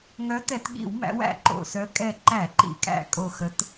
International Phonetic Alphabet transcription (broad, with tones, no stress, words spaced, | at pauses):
ŋœ˨˦tɛ˧˩˧tɠḭ˧˩˧wmæ̰˨˦w æ̰˧˩ǃo̰˧˩sœ˨˦ kʼɛ˧˩ ǃæ˧˩˧ǃḭ˧˩˧kʼæ̰˧˩ kʼo˧˩xə˨˦t